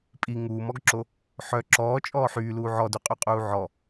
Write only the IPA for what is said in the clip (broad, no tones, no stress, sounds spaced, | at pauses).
pʼ i ŋ uː m ɔ ɡ ǁ o | ħ œ ǁ ɔː t͡ʃʼ ɔː ħ yː l uː ʕ ɔ d y qʼ y qʼ uː ʕ ɔ